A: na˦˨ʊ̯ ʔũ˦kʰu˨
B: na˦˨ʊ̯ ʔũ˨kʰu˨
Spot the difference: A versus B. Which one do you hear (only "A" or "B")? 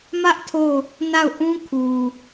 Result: A